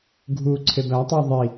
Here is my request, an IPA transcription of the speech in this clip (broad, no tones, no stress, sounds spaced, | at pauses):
ɡʱ u ǀʰ e b æ tˤ u ðˤ i